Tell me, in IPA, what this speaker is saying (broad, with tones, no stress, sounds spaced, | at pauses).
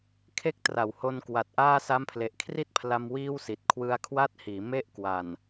kʰ e˥˩ k̚ t r a˨˩ w h o˧ n k w a˨˩ t̚ ʔ aː˥˩ s a˦˥ m pʰ l e˨˩ ʔ kʰ r i˥˩ t̚ pʰ l a˧ m w iː˥˩ w s i˨˩ t̚ kʰ w ɯ˧ a̯ kʰ w a˥˩ t̚ h iː˩˦ m e˦˥ ʔ k w a˨˩ n